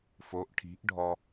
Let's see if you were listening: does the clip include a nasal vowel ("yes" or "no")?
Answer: no